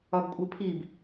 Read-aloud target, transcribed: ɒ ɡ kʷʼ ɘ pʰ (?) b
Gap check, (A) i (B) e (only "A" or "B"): A